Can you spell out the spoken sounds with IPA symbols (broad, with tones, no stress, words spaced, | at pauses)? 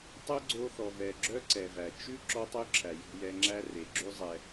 tˤɵ˦ɡ͡ǀo˧θɔ˨vɛ˨ ɡ͡ǁœ˦ǀɛ˨væ˨ t͡ʃʉ˦ ǁɔ˦tˤø˦ǁʰæ˨ jɔ̤˧jɛ˧ŋ͡ǁæ˦ re˨ɡ͡ǁʉ˦ zˤɛ˧